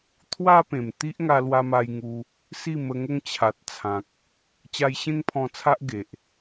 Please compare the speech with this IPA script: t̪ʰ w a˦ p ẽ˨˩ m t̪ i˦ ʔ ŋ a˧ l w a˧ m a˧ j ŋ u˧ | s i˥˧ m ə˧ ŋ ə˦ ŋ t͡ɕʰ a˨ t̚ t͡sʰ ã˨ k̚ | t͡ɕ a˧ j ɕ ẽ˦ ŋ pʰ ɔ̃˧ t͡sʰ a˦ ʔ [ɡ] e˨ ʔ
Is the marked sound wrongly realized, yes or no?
no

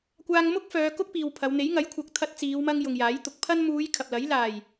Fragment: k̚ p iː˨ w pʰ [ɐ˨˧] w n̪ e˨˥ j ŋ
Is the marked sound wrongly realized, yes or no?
no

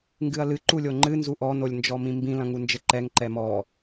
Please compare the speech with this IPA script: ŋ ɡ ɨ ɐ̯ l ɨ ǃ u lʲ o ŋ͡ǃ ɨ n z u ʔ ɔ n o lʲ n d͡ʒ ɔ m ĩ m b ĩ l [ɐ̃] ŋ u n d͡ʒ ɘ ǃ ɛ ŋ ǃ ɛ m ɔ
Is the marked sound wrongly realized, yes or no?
no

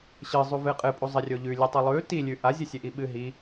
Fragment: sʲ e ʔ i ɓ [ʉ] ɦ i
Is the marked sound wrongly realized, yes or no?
yes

